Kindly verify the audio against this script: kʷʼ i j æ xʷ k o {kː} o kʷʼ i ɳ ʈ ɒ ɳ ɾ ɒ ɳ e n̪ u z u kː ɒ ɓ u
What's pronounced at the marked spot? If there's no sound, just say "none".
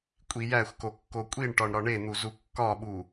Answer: kː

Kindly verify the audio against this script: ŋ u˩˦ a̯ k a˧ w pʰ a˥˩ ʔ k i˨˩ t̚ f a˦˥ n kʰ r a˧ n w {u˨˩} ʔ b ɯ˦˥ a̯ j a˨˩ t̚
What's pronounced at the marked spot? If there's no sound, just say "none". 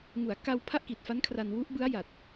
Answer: u˦˥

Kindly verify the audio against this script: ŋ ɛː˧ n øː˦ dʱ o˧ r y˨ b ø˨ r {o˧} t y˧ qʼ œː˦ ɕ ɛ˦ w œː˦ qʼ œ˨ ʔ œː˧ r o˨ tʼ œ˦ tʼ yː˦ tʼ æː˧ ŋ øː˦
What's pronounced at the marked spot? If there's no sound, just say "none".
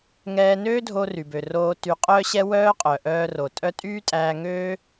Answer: oː˧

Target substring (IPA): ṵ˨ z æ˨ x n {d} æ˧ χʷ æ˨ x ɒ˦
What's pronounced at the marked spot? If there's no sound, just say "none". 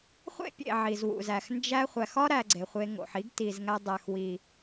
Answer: d͡ʒ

